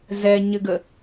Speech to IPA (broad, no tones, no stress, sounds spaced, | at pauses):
z ɛ ɲ ɘ ɡ ə